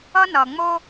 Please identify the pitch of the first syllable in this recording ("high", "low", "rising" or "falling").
high